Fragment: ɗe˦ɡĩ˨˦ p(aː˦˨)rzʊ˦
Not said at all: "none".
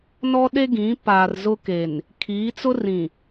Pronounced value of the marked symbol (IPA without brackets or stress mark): aː˨